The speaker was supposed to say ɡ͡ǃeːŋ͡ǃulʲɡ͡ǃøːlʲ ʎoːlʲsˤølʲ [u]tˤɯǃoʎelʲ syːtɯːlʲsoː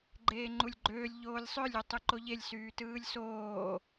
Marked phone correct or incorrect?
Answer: incorrect